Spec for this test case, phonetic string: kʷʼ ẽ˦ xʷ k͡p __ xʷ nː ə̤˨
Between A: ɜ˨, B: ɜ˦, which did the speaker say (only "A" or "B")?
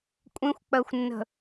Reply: A